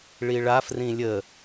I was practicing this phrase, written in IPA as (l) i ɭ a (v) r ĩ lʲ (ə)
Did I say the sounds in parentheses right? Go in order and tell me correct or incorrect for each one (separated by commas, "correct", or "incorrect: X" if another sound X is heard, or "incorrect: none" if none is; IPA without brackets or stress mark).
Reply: incorrect: ɭ, incorrect: f, correct